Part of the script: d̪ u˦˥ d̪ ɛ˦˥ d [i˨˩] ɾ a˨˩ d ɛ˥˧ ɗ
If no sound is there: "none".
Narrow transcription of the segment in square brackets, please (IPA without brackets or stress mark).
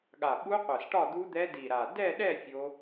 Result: i˨˩